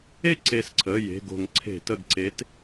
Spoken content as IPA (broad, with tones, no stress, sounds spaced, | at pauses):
e˥˨ ǀ e˧˩ s ǀʰ ə˩˧˩ j e̤˩˧˩ ɡ o̤˧˩˧ ŋ ǀʰ e̤˧˩˧ t ə˧˩ ɡ ǀ e˨˦ t